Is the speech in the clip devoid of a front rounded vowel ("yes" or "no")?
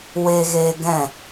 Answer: yes